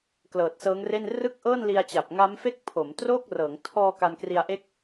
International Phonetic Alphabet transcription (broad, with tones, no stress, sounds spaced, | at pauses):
k l ɤː˨˩ t̚ s ɤː˦˥ ŋ r e˥˩ n r ɯ˥˩ k̚ ʔ ɤː˥˩ n l i˧ a̯ t͡ɕ a˨˩ p̚ ŋ a˦˥ m f e˥˩ k̚ pʰ o˩˦ m t r o˥˩ k̚ r ɤː˩˦ ŋ tʰ ɔː˧ k a˧ n k r i˧ a̯ ʔ e˥˩ k̚